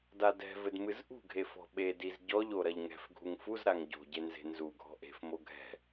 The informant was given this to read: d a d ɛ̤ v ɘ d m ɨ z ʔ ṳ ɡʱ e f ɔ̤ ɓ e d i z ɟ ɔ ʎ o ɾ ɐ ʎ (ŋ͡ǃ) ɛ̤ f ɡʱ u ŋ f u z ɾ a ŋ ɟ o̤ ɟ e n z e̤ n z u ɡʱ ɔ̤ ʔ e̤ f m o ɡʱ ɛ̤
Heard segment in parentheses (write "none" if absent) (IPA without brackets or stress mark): ŋ